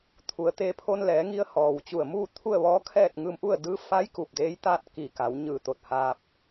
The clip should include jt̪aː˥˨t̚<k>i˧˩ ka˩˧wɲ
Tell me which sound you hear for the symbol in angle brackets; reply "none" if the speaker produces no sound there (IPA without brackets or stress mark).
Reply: k